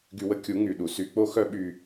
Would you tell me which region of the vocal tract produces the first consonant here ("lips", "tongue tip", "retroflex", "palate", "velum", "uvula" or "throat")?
velum